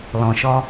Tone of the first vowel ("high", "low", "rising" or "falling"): low